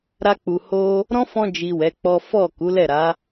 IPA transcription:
ɾ a˧ k͡p u˨ h o˧ | ɾ ɔ̃˦ f ɔ̃˧ d͡ʒ i˨ w ɛ˨˦ k͡p ɔ˦ f ɔ˦˨ k u˨˦ l ɛ˦˨ ɾ a˨˦

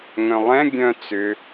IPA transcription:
ŋ œ̃ lˠ ɛ̃ ɡʲ œ̃ t͡s ʏ

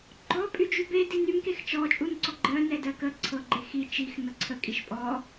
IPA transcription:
ɡ͡ǃ ɔ pʼ y d͡ʒ y b e d i n y m k e x t͡ʃ ɔ t͡ʃʼ u n ǀ ɔ ɡ͡ǃ ɜ n ɛ d ɜ k ə ǀʰ ɤ ɡ͡ǃ e x i t͡ʃ i x n ɤ ǀʰ ə kʼ i ʃ pʼ ɔ

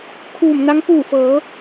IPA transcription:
kʰ uː˧˩ m n a˧˥ ŋ p uː˧˩ f ɤː˩˧

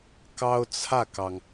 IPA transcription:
k ɑ˥ ʊ̯ t͡sʰ ä˥˩ k ɑ˩ ŋ

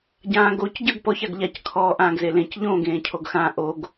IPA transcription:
ɟ ãː ɡ o c ɟ ə˞ ɡ p ɔ ç a ɡ ʎ a c kʰ ɔː ʔ ãː ɡ z e l ẽ c ʎ õː ɡ ẽː cʰ o ɡ x ã ʔ o ɡ

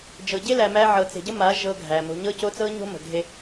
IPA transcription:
d͡ʒ ɤ˨ ɟ e˦ l æ˨ m æ˦ ʕ ɤ˨ t͡s e̤˨ ɟ ə˦ m a˨˦ ʒ ɤ˦ ɡʱ æ˨ m o̤˦ ɲ ɤ˦ c o˦ t͡s ɤ˦ ɲ o̤˦ m ə̤˨ ɡʱ e˦

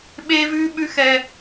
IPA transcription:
ɓ e˦ v ʉ˦ ɓ ʉ˦ x ɛ˦

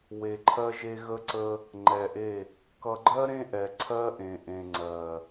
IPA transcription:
w e˨ ǃʰ ɜ˦ ʒ e˦ ɣ ə˦ ǀ ə˦ | ŋ͡ǃ ɛ˨ ʔ e˦˨ | k ʌ˨ ɡ͡ǃ ɜ˦ ɾ ẽ˦ ʔ ɛ˨ ǀʰ ɜ˦ ʔ ẽ˨ ʔ ẽ˨ ŋ͡ǀ ɜ˨

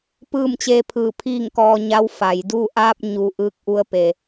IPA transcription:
p ɯː˥˨ m t͡ɕ eː˧ pʰ ɯː˧˩ pʰ iː˥˨ ŋ k ɔː˧ ɲ a˧˥ w f a˩ j d u˥˨ ʔ aː˧ p̚ ɲ u˩ ʔ ɯː˧˥ k̚ ʔ u˧˥ ə̯ p e˩

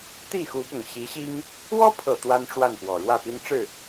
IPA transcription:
t̪ i˥˩ x u˧˥ p ʊ˨˩ ŋ ɕ i˧˥ ɕ i˥ ŋ | w ɔ˥ pʰ ɤ˨˩ t̪ w a˥ n ʈ͡ʂ w a˥˩ n f w ɔ˨˩ ɻ w ä˥˩ p i˥ n ʈ͡ʂ ɻ̩˥˩

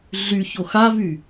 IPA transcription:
ɮ y ç o x a v y

